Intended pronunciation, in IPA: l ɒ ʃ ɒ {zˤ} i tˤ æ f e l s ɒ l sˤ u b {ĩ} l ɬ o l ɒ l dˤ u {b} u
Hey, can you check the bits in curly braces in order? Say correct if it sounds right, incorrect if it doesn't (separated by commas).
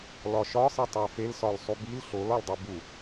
incorrect, incorrect, correct